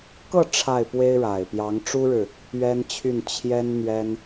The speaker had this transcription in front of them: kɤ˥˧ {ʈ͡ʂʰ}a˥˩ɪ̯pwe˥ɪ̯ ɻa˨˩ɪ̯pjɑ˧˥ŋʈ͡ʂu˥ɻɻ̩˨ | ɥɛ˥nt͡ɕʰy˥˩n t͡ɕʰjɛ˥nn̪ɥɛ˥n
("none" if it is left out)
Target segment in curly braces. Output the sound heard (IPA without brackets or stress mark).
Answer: ʈ͡ʂʰ